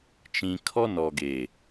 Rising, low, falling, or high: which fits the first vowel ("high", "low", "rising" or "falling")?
low